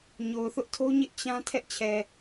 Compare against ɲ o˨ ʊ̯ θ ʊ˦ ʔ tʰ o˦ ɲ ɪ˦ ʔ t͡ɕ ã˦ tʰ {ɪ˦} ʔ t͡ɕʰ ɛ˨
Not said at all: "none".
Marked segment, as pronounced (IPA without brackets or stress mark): ɛ˦